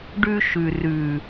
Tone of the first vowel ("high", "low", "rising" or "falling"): high